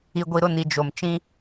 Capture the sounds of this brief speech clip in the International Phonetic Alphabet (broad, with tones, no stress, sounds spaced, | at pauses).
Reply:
i˨ ɡʷ i˨ ɾ ʊ˦˨ n i˨ d͡ʒ o˨ m t͡ʃ ĩ˦